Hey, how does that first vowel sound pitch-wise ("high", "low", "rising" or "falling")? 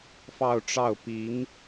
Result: falling